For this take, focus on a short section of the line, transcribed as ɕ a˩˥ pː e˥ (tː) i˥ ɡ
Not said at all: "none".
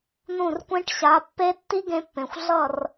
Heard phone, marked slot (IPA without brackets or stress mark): tː